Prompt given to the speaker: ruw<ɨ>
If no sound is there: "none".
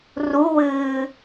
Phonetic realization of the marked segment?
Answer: ɨː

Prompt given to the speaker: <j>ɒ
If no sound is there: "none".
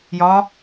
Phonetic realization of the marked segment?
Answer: j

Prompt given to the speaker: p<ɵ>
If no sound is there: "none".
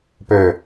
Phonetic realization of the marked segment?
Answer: ɵ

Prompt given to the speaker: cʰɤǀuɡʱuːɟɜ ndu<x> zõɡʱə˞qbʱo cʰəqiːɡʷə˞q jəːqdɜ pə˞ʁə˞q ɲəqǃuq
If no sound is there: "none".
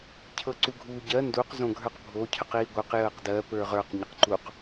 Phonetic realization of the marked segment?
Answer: q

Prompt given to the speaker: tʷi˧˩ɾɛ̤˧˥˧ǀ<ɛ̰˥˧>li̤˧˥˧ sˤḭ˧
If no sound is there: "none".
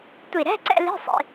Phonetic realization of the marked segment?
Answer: ɛ̰˥˧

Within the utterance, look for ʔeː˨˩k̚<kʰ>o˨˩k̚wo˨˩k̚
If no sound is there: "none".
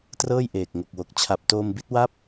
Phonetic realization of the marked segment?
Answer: ŋ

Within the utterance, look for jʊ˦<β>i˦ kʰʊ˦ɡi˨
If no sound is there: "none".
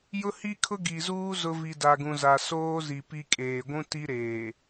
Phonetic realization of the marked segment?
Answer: h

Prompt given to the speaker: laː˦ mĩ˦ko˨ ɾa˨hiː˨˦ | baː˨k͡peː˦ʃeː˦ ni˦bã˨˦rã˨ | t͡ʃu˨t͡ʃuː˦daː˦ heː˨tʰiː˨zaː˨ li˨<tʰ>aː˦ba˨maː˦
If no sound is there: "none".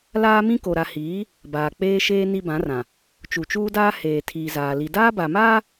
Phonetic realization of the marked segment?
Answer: d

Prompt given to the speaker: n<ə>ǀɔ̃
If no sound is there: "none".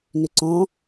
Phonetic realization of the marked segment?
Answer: ʏ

